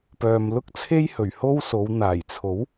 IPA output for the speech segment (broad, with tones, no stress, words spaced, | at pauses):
pœː˨mlʊ˥k̚t͡sʰe˥j hɵ˨˩ɥho˥wso˨˧w n̪aː˨˩jt͡sʰo˨˥w